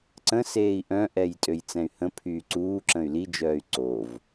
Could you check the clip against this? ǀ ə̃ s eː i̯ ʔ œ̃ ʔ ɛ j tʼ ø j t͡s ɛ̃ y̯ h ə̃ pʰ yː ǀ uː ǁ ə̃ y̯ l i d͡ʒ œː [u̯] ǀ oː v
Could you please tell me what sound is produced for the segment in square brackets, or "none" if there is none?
y̯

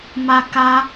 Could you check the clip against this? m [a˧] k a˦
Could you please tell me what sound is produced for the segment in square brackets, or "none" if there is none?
a˧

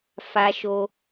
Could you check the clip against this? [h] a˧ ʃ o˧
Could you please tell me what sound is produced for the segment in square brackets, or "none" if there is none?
f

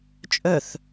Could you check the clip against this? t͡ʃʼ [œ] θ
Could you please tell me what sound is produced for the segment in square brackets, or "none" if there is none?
œ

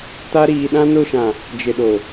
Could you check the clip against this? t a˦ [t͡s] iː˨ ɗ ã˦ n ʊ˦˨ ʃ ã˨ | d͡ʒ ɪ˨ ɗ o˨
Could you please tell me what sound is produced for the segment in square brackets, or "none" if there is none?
ɾ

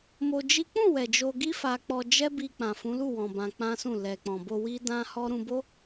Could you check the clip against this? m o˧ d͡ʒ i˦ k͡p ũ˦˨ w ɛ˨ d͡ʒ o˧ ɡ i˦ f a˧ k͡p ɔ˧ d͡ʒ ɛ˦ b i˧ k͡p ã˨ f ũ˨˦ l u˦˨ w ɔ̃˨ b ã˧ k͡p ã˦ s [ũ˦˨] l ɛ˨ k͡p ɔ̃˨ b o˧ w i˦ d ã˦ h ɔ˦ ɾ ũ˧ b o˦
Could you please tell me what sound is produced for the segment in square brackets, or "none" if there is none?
ũ˦˨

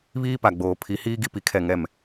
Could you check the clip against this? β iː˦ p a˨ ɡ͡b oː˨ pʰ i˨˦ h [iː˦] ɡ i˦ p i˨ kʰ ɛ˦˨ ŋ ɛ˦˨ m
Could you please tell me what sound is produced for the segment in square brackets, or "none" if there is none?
iː˦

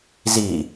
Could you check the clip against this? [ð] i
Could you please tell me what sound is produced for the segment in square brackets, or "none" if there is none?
z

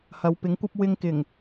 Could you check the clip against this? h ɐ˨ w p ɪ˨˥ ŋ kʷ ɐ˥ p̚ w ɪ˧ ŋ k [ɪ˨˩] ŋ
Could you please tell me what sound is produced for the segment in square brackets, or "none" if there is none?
ɪ˨˩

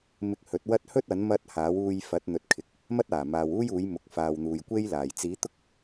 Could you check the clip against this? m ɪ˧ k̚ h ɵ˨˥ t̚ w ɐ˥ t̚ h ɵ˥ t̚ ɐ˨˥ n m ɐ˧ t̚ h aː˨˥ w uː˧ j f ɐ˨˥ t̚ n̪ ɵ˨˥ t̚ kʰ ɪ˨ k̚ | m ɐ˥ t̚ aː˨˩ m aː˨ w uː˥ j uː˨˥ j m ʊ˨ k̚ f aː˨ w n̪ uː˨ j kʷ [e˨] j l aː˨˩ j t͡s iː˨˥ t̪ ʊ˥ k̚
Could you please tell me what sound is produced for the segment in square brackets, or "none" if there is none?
e˥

